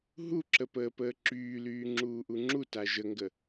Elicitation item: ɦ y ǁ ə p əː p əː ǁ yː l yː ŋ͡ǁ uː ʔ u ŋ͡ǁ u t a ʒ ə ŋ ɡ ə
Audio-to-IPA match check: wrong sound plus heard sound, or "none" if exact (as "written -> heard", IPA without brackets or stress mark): y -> u